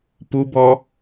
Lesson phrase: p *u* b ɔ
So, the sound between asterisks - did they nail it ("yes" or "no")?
yes